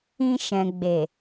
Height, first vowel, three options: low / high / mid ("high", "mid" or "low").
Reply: high